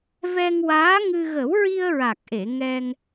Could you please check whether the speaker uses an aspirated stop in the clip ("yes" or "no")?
no